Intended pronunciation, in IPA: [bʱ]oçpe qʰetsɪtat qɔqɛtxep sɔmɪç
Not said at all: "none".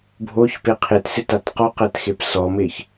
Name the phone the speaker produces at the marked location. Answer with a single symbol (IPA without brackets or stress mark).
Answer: bʱ